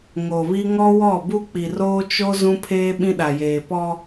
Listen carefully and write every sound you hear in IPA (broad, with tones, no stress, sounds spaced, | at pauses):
ŋ o˨ β i˦ ŋ ɔ˦ w ɔ˦˨ b u˦ k͡p i˨ r oː˦ t͡ʃ o˦ z ũ˦ pʰ eː˦ ɓ ĩ˦ ɗ a˨ j eː˨ p ɔ˦